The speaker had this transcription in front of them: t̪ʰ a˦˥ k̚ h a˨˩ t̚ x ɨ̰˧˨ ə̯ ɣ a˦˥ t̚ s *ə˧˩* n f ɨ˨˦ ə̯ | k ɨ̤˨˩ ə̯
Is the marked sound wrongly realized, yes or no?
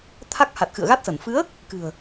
no